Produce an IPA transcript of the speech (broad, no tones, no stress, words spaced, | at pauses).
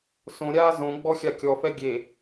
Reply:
sõɾʲaː zõɡ͡bɔ xʲakʲɔfɛ ɡʲe